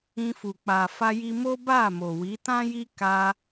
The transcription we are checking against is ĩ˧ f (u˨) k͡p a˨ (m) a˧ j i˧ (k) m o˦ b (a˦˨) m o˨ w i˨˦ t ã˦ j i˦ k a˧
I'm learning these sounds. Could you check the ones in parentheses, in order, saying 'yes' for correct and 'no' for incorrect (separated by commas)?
yes, no, no, yes